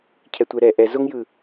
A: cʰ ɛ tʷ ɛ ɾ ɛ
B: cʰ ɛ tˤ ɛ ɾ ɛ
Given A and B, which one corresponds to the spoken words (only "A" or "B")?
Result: A